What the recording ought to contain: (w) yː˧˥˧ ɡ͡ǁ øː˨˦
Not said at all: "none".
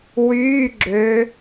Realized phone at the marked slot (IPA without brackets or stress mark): w